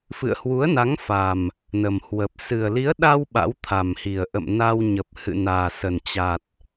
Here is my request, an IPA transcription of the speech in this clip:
f ɨ̰˧˨ ə̯ h w u˨˦ ə̯ n a˨˦ ŋ f a˨˩ m | n ə˨˩ m h w ə˨˩ p̚ s ɨ˨˩ ə̯ l i˨˦ ə̯ ɗ a˧ w ɓ a̰˧˥ w t̪ʰ a˨˩ m h i˨˩ ə̯ ʔ ə̰˧˨ m n a˧ w ɲ ə˨˩ p̚ h ɨ̰˧˨ n aː˨˩ s ə˨˩ n t͡ɕ a˨˩ t̚

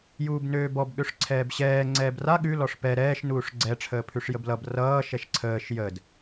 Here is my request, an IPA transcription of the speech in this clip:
j uː b n øː b ɔ b ɠ ø ʂ ǀʰ ɛː b ɕ ɛː ŋ͡ǀ ɛː b r a ɠ ʉ l ɔ ʂ p ɛ ɾ ɛː ʃ n uː ʂ ɡ͡ǀ ɛ ʈ͡ʂʰ əː pʰ ʉ ʂ j ə b l ʌ b r ʌː ʃ ɛ ʃ ǀʰ əː ʃ j ə d

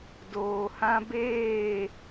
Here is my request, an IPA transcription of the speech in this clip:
d oː˨ h ã˦ b eː˦˨

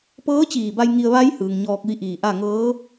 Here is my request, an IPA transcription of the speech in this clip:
p ɤː˧˥ t͡ɕ iː˧˩ b a˧ j ŋ i˧ ə̯ ʋ a˧˥ j h ɯː˩ ŋ ɲ ɔː˧ k̚ ʋ i˧˥ ʔ iː˧˩ ʔ a˥˨ ŋ ɤː˧˥

